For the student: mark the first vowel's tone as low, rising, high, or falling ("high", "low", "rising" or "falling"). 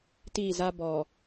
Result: falling